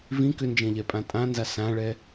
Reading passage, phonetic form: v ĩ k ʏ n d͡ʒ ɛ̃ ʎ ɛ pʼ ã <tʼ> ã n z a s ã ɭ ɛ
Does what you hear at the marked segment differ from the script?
no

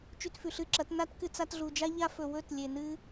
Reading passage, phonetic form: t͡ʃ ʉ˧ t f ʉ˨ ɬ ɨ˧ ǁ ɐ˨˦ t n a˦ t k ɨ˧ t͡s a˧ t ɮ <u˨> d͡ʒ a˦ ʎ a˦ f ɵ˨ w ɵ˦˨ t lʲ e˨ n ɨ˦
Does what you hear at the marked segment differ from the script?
no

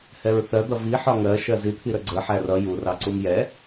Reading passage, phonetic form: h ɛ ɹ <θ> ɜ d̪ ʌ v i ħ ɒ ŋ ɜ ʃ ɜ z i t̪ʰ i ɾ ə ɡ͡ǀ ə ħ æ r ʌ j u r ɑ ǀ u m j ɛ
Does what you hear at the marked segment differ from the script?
no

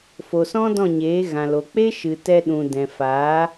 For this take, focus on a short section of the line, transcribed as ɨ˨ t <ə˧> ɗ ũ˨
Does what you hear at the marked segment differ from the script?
yes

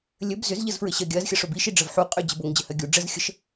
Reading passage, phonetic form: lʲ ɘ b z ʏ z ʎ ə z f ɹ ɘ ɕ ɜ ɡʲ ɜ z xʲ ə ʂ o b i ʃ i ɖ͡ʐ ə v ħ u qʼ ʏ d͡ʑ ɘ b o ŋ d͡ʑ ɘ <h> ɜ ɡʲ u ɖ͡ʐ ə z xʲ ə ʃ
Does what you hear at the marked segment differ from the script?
no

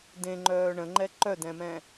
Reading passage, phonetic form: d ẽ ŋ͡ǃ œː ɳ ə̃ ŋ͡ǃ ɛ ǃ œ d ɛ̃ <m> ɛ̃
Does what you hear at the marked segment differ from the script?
no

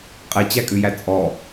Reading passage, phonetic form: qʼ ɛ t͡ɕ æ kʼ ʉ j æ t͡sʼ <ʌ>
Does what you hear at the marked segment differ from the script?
yes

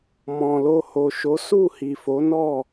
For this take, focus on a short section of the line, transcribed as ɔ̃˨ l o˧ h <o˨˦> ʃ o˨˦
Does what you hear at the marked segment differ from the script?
yes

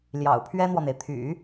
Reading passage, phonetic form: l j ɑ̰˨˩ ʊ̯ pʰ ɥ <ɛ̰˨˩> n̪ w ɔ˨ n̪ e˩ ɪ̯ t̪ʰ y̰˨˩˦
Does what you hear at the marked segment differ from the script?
yes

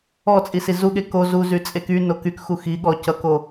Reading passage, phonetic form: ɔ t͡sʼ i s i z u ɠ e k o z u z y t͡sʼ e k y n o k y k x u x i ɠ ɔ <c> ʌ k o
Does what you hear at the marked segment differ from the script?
no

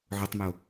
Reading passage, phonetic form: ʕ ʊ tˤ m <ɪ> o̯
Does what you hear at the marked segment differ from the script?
no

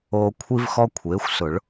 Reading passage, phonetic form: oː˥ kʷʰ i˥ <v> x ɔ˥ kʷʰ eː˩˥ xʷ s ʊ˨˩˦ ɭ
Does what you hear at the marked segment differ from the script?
no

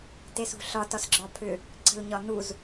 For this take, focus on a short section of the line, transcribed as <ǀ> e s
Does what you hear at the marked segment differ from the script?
yes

